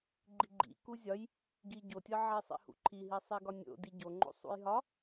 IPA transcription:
ɡ͡ǃiɡ͡ǃḭ kuzʲɒj | ɡi ɟotʲɒ ʕesˤḭhṵǃʰi ɦisˤiɡɒnʲo̰ diɟoŋ͡ǃo̰ sˤṵjɦɒ

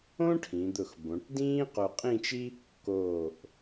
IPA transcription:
õ˥ʈʰĩ˩˧d̪ʊ˧˩x bõ˩˧ʈdĩː˥ qo˧qʼĩː˥˧t͡ʃi˥ | koː˧˩ʔ

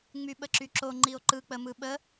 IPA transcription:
ŋ͡myɓəǁyǁo ŋ͡ǃio̯ǃɯ k͡pəmɯɓə

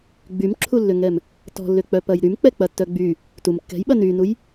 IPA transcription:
ɡ͡bymǁʰulːʏŋɛm | tɔ̤lːʏk͡pœpɐj ɾymk͡pɛk͡pɐtːœ ɡ͡by | tum kːɛ̤jɓɐ nynuj

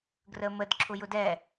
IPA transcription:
ɡrəməd ǁʰʊjʊdɛ

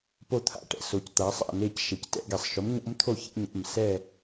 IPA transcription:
po˥˩t̪ʰa̰˥˩ʈɛ̰˩ so˩˧c t̪a˩˧sˤa̰˥˩ne˥˩c ʃe˩ctɛ̰˩˧ɡɛ˩sˤ ʃʊ˩˥mɲo̰˧˥mt̪ʰo˥˩ çḛ˧˥ɲa̰˩˧˩m sɛ˥˩

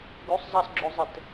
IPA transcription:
ɡusˤzˤɑsɡ͡ǁozˤɘt

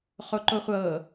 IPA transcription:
χoǃoχʷɤ

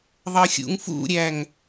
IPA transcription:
ðˤɤxʲṵŋfṵɾʲæŋ

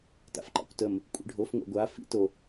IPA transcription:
ta̰fǃɑ̰kʷtəm | kʷʼḭɖʱof ŋʷɑ̰ɡʷa fḭt o

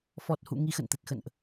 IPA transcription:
fɔ˨˩t̚hṵ˧˨ ŋi˧xə̰˧˨nt̪ə˨˩t̚xə̰˧˨nʔ

